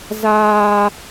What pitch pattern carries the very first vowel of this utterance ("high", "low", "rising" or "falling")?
high